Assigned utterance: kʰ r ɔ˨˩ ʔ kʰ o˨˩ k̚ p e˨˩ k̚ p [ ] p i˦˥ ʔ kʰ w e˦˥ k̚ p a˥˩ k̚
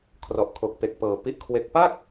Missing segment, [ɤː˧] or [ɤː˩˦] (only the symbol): ɤː˩˦